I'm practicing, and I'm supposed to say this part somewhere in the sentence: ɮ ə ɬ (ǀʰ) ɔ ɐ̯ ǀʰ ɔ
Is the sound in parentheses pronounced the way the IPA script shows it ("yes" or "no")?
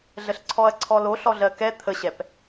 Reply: yes